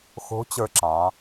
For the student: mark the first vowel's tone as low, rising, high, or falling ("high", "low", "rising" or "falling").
rising